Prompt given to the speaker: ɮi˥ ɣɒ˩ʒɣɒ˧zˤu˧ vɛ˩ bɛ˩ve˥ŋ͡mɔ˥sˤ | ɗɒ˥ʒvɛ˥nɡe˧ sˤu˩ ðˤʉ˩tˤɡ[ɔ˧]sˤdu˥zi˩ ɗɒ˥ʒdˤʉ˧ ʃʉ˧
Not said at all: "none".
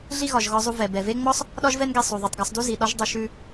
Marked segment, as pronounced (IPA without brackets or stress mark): ɔ˧